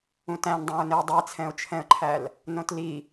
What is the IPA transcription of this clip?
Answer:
ũ t æ̃ n dˤ æ̃ ʊ̯ n e ʊ̯ dˤ i t͡sʰ ɛ̃ ʊ̯ t͡ʃʰ ɛ̃ ə̯ ǃʰ æ l | n õ t l i

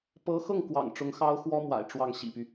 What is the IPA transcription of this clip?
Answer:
p ɤ˧˥ x ɤ˥˩ ŋ k w ɑ̰˨˩ ŋ ʈ͡ʂ ʊ˧˥ ŋ x ɑ˥ ʊ̯ x w ɔ˥ m w a̰˨˩ ɪ̯ ʈ͡ʂ w ɑ˥˩ ŋ ɕ ḭ˨˩ p y˦

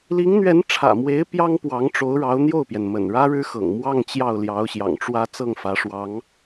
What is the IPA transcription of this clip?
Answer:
l i˧˥ ŋ n̪ ɥ ɛ˧˥ n ʈ͡ʂʰ ä̰˨˩ m w e˧˥ ɪ̯ p j ɑ˥ ŋ p w ɑ˧˥ ŋ ʈ͡ʂ o˧˥ ʊ̯ ɻ ɑ˧˥ ʊ̯ n̪ j o˥˩ ʊ̯ p j ɛ˩ n m ə̰˨˩ n ɻ ä˥ ɻ ɻ̩˥ x ɤ̰˨˩ ŋ m w ɑ˥˧ ŋ t͡ɕ j ɑ˥˩ ʊ̯ l j ɑ˧˥ ʊ̯ ɕ j ɑ̰˨˩ ŋ ʈ͡ʂ w ä˥ t͡s ɤ˥˩ ŋ f ä˧˥ ʂ w ɑ˧˥ ŋ

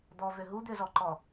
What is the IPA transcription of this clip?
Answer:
d̪ ɔ v ø ɦ u d̪ ø z ɔ ǃ ɔ

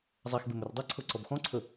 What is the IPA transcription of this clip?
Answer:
zˤ a x b e m ɵ r dˤ i ǀʰ ɤ ǀ ɔ b x ɔ̃ ǀʰ ə

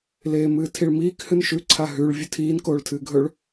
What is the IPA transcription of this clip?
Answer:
l eː m ɨː tʰ i ɭ m iː k h ɨ n ʃ ʉ ǀʰ a ɦ ʉ ɭ vʲ ɵ tʰ iː n k oː ɭ tʰ ɨː ɡʱ ɵ ɭ

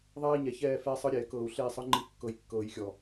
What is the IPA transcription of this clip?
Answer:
ðˤ ɛː˦ i̯ ɲ ɛ˨ ç ɛː˦˨ f ɛː˦ sˤ ɯ˦ ɾʲ ɛː˨ k ɤː˨ u̯ ɬ eː˦˨ sˤ ɯ˦ ŋ͡ǃ i˦ kː ɤ˨ j kː ɤː˨ j xʲ ɔ˨

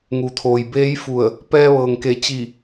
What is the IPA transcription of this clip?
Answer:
ŋ u˩ t̪ʰ oː˩ j b eː˧˥ j f u˧˩ ə̯ | p ɛː˧ ʋ ɤː˩ ŋ k e˩˧ t͡ɕ i˧˩

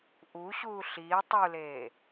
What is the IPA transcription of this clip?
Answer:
ʔ u ɕ uː ɬ iː tˤ u l eː

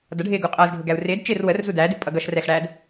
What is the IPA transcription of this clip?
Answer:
d ʌ ɖʱ ɪː ɡ u qʼ ʌː z ɖʱ ʊ ɡ æ u̯ r ɪː d t͡ʃ ɪː r w ə r z u d æː d ɪ pʼ ʌ ɡ ʌ ʃ r ɛ x ɽ æː d

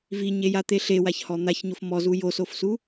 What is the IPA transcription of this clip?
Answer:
v i ɲ e j a t̪ e ɬ e w a ç h ɔ n̪ a ç ɲ o f m ɔ z u j o s o f s u

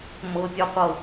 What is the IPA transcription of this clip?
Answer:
m ɤ pʲ ɔ qʷ ɤ

